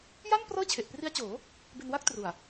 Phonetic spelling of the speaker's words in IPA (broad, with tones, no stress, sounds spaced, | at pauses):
j a˥˩ n p r ɤː˥˩ t͡ɕʰ e˨˩ ʔ p r i˦˥ a̯ t͡ɕ oː˩˦ | b e˧ n w a˥˩ k̚ t r u˨˩ a̯